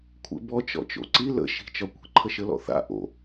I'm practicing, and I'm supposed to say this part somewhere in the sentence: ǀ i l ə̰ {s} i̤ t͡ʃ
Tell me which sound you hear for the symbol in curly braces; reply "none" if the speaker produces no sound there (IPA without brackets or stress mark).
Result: ʃ